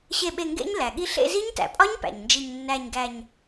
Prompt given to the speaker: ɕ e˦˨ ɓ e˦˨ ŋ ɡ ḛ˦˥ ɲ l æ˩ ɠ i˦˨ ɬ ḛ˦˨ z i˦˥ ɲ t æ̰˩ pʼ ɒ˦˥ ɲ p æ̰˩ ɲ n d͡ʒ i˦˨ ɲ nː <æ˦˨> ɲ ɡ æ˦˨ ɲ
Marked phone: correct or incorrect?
correct